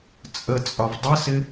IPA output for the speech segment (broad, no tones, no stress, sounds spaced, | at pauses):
t͡sʼ ə t͡sʼ ɒ v dˤ ə s ɪ